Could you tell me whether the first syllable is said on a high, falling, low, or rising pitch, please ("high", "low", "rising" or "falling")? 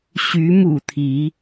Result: rising